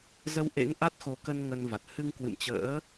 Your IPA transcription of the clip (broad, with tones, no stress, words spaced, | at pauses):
zə˧wʔḛ˧˥ŋ ʔa˦˥t̚xo˨˦ kə˧n ŋə˧nva˨˩t̚ hɨ˧ŋkwɨ̰˧˨mt͡ɕə̰ː˧˥